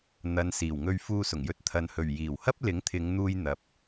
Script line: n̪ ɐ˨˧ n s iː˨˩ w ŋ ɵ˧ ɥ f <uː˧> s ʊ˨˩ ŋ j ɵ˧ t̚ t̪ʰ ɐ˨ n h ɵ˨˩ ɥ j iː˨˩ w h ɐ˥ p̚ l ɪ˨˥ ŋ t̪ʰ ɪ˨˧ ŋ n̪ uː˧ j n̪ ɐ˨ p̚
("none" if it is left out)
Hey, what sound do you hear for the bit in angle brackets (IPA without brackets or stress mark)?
uː˧